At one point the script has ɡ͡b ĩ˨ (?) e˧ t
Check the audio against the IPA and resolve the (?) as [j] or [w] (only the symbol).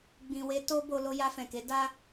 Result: w